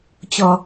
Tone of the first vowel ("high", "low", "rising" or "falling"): low